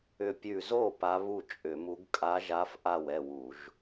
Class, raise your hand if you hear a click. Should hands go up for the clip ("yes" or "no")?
no